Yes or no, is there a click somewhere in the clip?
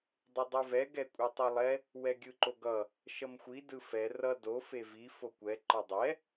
yes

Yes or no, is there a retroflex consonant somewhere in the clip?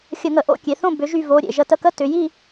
no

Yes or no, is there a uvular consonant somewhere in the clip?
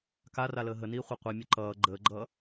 yes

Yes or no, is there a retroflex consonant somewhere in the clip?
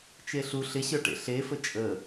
yes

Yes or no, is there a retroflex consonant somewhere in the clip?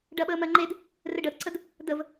yes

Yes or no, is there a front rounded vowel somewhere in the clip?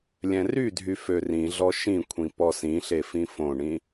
yes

